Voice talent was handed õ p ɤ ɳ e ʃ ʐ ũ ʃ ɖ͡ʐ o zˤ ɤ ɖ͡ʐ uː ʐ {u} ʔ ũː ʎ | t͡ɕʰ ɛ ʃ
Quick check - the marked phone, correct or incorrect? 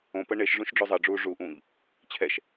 correct